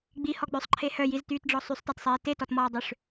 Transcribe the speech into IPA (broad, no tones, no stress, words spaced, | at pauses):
ɡ͡bihɔɡ͡bøsˤǃʰe hœjiztyːtɖ͡ʐɔ sˤysˤtatsˤiː tetɔtmɔːdˤøʂ